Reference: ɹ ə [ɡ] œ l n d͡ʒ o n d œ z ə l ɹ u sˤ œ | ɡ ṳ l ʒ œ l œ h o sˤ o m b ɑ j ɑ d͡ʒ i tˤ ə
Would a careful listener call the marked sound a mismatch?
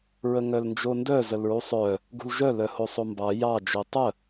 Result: yes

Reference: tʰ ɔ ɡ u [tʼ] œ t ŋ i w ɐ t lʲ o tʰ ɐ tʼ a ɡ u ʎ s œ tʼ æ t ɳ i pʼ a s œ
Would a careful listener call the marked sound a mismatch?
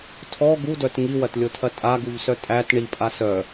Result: yes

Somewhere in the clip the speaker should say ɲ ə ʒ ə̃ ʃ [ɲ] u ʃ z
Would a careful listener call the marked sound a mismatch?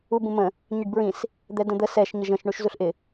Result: yes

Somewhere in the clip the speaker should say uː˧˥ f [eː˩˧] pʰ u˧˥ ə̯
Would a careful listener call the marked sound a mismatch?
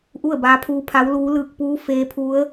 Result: yes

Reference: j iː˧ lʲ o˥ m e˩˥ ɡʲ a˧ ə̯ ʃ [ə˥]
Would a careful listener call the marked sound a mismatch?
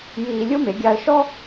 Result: yes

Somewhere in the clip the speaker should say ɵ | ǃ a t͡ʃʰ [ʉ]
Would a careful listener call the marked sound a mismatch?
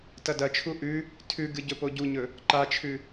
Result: no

